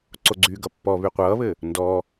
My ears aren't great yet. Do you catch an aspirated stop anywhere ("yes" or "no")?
no